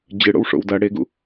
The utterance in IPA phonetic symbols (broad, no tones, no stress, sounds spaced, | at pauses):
d͡ʑ ɨ ɽ o̰ w ʂ o̰ w d ɐ ɽ e ɡ ṵ